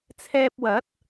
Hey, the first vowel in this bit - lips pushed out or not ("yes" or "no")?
no